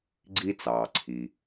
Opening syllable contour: high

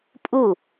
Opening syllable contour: falling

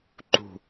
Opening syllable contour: falling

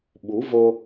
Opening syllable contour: rising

